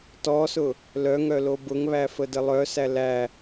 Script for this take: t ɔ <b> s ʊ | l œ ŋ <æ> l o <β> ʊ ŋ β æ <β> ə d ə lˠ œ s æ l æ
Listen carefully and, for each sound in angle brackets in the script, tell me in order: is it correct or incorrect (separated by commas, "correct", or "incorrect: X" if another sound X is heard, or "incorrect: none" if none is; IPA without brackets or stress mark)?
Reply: incorrect: none, incorrect: œ, incorrect: b, incorrect: f